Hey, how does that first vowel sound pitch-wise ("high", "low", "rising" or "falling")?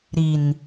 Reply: low